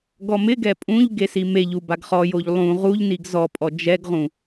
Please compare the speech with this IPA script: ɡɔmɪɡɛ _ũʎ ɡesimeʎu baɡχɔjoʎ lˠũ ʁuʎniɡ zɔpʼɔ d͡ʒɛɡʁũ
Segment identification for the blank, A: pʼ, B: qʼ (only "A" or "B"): A